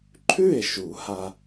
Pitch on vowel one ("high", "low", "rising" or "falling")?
falling